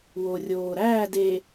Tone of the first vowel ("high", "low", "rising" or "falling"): low